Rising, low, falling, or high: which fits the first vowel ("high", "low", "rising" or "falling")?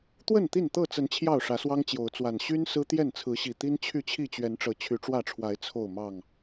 falling